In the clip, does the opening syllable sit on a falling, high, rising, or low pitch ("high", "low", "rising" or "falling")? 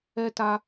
high